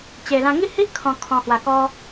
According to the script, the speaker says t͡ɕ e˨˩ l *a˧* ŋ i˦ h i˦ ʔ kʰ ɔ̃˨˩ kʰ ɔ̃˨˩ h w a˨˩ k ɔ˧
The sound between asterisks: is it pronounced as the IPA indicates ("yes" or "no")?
no